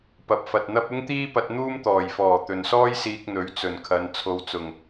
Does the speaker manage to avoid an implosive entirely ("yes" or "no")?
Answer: yes